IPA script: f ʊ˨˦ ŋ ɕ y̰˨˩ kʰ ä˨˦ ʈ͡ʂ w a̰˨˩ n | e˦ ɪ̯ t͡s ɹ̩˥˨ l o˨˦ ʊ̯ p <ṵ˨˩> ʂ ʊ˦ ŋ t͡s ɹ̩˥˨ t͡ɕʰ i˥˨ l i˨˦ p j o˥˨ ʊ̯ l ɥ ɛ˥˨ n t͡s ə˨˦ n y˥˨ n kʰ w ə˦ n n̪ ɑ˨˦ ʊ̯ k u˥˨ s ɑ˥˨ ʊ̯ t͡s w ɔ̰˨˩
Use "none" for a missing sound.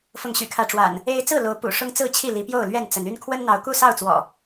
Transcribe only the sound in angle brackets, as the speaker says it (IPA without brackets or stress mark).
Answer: ṵ˨˩